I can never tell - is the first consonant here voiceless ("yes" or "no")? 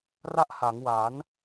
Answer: no